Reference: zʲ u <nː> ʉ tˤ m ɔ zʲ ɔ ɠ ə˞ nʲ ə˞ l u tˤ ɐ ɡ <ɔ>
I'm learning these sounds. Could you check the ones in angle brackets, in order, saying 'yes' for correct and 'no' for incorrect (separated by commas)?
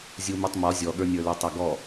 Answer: no, yes